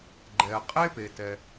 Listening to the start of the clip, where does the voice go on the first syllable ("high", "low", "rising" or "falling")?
low